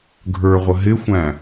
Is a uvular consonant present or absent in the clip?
present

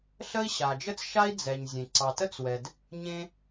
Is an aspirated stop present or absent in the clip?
absent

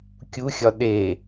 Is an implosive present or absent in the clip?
present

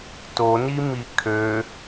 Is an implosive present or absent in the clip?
absent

